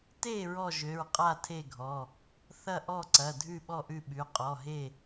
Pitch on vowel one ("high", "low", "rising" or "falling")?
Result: falling